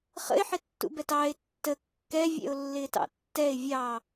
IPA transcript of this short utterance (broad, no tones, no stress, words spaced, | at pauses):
χə̰ɪ̯ħɪtːṵbɛt ɑɪ̯ tːə kːɛvʲɛ̰ʊ̯lːɪːtɑ̰ tːɛɪ̯ vʲɑ